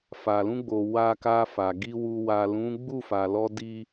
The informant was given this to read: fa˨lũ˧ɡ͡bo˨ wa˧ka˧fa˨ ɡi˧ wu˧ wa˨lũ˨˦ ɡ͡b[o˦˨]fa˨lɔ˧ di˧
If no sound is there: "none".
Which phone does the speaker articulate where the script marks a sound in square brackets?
u˦˨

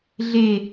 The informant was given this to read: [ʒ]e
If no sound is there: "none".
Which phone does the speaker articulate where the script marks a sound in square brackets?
ɮ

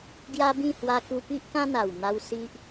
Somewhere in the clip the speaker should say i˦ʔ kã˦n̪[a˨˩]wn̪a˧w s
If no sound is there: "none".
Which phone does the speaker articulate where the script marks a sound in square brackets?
a˨˩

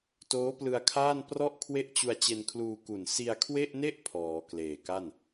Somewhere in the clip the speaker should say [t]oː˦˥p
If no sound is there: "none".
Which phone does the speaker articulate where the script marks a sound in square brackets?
t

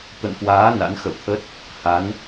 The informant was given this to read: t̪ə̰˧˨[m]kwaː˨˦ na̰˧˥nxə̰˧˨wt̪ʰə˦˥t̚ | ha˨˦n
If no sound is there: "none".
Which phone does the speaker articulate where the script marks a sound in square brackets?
n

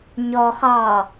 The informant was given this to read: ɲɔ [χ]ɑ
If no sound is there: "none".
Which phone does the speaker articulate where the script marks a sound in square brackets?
χ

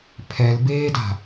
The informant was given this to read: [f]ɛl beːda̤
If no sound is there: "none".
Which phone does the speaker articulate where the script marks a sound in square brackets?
pʰ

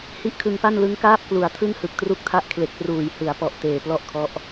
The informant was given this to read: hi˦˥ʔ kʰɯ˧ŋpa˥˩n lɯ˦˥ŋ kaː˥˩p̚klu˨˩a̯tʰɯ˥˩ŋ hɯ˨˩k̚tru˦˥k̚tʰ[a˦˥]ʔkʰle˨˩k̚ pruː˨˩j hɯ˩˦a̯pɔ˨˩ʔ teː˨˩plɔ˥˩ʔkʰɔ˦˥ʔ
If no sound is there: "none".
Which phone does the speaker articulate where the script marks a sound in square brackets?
a˦˥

